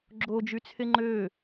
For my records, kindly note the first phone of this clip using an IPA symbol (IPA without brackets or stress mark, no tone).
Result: ɡ͡ǁ